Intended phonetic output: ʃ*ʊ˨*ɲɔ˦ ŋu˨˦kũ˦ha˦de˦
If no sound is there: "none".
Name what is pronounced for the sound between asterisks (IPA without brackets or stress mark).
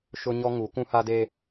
ʊ˦